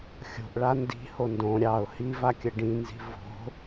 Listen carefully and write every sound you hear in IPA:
xʲo̤ʔɭa ndi̤ho ndõ ɾʲɑʊ̯ hivakʲə ɖĩnzi̤ vo̤

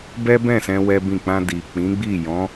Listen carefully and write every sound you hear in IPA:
bɛ˦bɛ̃˦˨sɛ̃˧ wɛ˦bĩ˦˨ k͡pã˧di˨ k͡pĩ˨˦ɡ͡bi˦˨jɔ̃˨˦

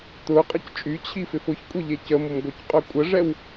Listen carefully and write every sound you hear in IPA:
t̪ʊqʼəc t͡ʃʼyt͡ɕʰifɪf ʊçkʷʼeʎe cəmʊmɡʷœcqʼœ kʷʼəʐɛw

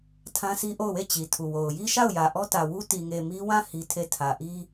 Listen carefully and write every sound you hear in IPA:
tʰã˦sʰi˦ʔo˦˨ʊ̯we˦˨ t͡ɕi˨ tʰu˨wo˨ʊ̯ ji˦ʃa˦˨ʊ̯ jä˨ ʔɔ˦tä˨wu˦ ti˨ŋe˨ mi˦wã˦˨ hi˦ tʰe˦˨ tʰä˨ʔi˦

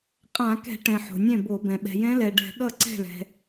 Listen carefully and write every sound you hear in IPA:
qʼã˧˩˧kɛ̤˧˩˧ʈɛ̃˩ ħo̤˩nʲɛ̃˥˩bo˧˩˧bɛ̃˩ ɓɛ̤˩jɛ̃˧˥lɛ˩ɖɛ̤˧˩˧ ɠʌ˥˩ǀɛ̤˥˩ɭɛ̤˩

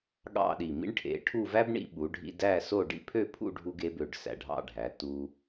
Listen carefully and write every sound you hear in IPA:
ɠɑ̰˥˧ɗi˧˩ mḭ˥ɳʈʰḛ˩˧ʈʰu˥˧ væ˥bɳḭ˧ ɓu˩˧ɖʱḭ˧ dæ˥˧so˥˧ ɖḭ˥˧pʰø˥˧pʰṵ˥˧ɖʱu˧ɡ e˩˧bø˧˩ɖ sæ̰˧˩ɖʱɑ̰˥˧ɖʱæ˩˧ tu˧

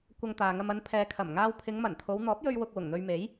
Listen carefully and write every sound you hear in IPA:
kʷɐ˧ŋt̪aː˨ŋɐ˧m ɐ˨˧n pʰɛː˨kʰɐ˨˩m ŋaː˧wpʰɪ˨˧ŋmɐ˨˩nt̪ʰo˨˧w n̪ɔː˨˥p̚jɵ˧ɥ wʊ˧k̚ wʊ˨˩ŋn̪ɵ˧ɥme˨˥j

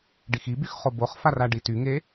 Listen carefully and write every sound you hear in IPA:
ɖixibyx χoboχfar aɖityŋe

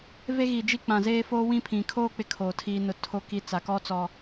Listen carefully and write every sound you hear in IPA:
ve˦ɣi˨d͡ʒi˦ k͡pã˨zeː˦foː˦wĩ˦ pʰĩ˨kʰoː˦ k͡pɪ˦ kʰoː˨tʰiː˦nʊ˦ tʰo˦ki˦ t͡sa˨kɔ˦t͡sɔ˨

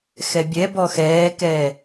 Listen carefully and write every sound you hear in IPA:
xɛbʲɛbɔ xɛːkɛː

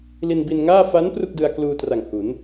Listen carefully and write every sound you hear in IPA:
li˧nbi˧nŋaː˥˩ fa˦˥n pru˥˩k̚dɯ˧a̯kluː˧ tra˨˩ŋ hu˩˦n

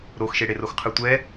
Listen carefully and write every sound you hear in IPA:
ɾoxʃeɽerox qʰɯtʷɛ

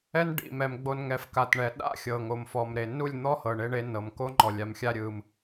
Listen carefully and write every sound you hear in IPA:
ɛ˦nɖḭ˨mɛ˨m ɡ͡bo˨n ŋɛ˨f ka˨tɳɛ˨ ɗa̰˦ xʲɤ˨ŋo˨mfɔ˨mɾe˨ nu˦˨lʲn̪ɔ˦hɤ˨ ɳe˦ɳe˦nɤ˨m ko˦ŋ͡ǃɔ˨lʲa˨m xʲa˦ɾʲɯ˨m

